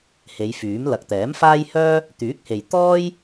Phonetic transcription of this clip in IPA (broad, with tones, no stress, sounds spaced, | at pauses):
h e˨˧ j f yː˨˥ m l ɐ˨ k̚ t̪ ɛː˨˥ m f aː˥ j h œː˥ | t̪ yː˨˥ k̚ h e˨ j t̪ ɔː˥ j